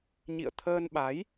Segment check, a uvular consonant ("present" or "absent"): absent